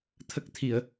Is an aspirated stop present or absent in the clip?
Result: present